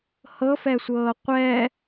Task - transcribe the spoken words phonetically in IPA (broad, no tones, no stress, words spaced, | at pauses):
hɤfɛsʷɤː qʷɛ